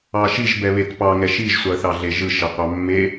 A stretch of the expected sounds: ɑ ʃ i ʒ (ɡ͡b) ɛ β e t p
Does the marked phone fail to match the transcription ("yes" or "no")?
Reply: yes